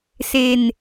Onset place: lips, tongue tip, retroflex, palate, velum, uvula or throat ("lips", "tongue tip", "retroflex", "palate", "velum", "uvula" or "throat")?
tongue tip